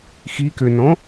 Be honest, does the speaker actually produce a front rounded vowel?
yes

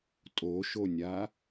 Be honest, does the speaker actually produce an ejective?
yes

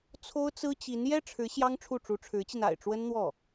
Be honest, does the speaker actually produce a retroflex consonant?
yes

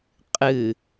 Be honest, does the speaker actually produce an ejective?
yes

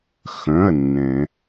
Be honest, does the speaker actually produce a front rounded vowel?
yes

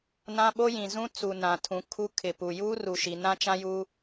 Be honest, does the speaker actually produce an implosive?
yes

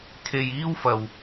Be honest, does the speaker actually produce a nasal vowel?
no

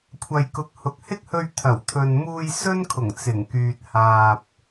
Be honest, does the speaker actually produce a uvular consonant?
no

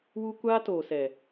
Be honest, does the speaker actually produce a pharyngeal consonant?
no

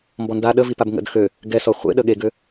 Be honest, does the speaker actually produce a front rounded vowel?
yes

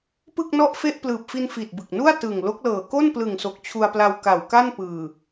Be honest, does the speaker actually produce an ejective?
no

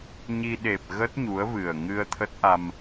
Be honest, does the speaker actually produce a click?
no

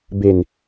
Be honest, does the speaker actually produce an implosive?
no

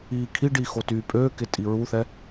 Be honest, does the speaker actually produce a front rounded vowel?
yes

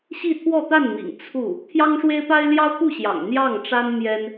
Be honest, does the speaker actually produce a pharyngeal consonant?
no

